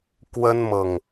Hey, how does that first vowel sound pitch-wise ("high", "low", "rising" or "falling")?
high